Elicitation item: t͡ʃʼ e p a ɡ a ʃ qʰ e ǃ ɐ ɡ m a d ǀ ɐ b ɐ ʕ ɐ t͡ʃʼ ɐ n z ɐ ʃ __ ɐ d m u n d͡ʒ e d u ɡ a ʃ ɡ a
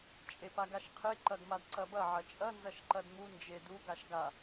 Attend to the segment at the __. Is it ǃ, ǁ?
ǃ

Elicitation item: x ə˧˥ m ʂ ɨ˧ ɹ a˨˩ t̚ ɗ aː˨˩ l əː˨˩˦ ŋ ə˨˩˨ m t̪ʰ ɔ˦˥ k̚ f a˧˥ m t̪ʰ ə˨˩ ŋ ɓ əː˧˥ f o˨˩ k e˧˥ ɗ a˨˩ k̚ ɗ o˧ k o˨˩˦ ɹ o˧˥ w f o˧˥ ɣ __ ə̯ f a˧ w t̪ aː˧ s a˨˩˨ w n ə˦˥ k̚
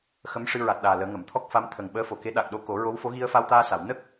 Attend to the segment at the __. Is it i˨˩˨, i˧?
i˧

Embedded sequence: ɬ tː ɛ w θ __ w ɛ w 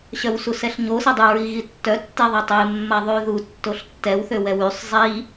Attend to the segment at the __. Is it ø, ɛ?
ø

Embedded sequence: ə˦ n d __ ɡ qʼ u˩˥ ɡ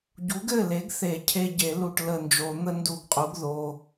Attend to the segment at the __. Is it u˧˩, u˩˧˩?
u˧˩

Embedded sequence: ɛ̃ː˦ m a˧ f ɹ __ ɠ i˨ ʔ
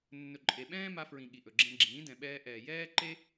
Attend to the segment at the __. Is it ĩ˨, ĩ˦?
ĩ˨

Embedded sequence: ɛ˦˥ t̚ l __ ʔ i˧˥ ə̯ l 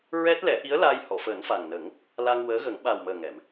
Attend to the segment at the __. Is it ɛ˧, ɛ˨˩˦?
ɛ˨˩˦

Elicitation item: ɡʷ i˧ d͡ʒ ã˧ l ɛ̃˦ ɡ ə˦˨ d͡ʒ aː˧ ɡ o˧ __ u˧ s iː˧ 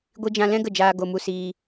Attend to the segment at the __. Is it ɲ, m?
m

